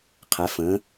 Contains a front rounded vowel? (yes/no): no